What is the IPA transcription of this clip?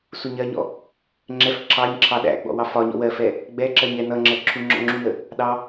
suɲɜɲɔ̰ | ŋ͡ǁɛf ǁɑɲ ǁʰɑɗæ̰ɡ͡bɔ̰ wɑfɒɲɔ̰ wɜfɛ | ɡ͡bɛǁɜɲ ɛnʌŋ͡ǁɜ ǁʰuŋ͡ǁɔ̰ŋ͡ǁunə | ɗɑ

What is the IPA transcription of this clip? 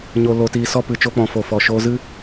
ɲo˨ lo˨tiː˨sɔ˧ pɨ˨t͡ʃo˧k͡pɔ̃˨ fo˨fɔ˨ʃoː˧ zɨ˦

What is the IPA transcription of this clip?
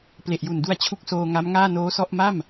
ple˨˩ʔ ju˨˩ndu˧a̯ t͡ɕʰu˦˥k̚soː˧ŋa˦˥mŋaː˥˩ noː˦˥sɔ˥˩ʔ ma˥˩m

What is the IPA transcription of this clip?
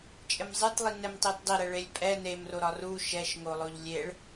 t͡ʃʼɘmzˤɛtlˠi nɛmtˤetdˤiɾɛ ɭelʲpʼɛ nemro ɾɒru ʃɛʃŋo lˠoʎlʲeɭ

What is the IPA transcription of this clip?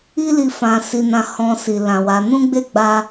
i˦ li˦˨fã˧si˧nã˦ hɔ̃˧si˨ lã˨ wa˨˦ nũ˦ɡ͡be˦˨ɡ͡ba˧

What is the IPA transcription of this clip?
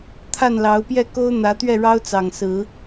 t̪ʰa˥˨nlɑ˨˦ʊ̯pjɛ˥˨ ko˦ʊ̯n̪ä˨˦t̪ɥɛ˥˨ɻɑ˦ʊ̯ t͡sɑ˨˩ŋsɹ̩˨˦

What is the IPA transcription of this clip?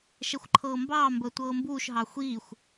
ʃɛxʷǃʰɤːmbɑːmbəː tʷɤːmbuːʃɦɑ xʷiːxʷ

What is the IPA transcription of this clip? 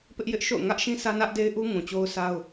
pɪ˦ʔjɪ˦ʔʃo̰˦˨ʊ̯ ŋä˦ʔʃĩ˦ sä˦nä˦ʔde˦ɪ̯ʔu˦ ŋũ˨t͡ɕo˦ʊ̯sa˦ʊ̯

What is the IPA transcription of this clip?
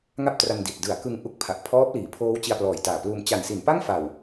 ŋa˥˩p̚tra˧ndi˨˩t̚ dɯ˩˦a̯ kɯ˧ŋ ʔu˦˥k̚pʰa˨˩ʔ pʰɔː˦˥p̚liː˩˦pʰoː˦˥w t͡ɕi˧a̯plɔː˨˩jtaː˨˩pluː˧m t͡ɕa˨˩nsi˩˦npa˥˩ŋfa˨˩w

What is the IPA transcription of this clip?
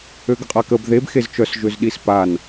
øɡəqʼakəb ðeb xezt͡ʃœs ʒøzɗispan

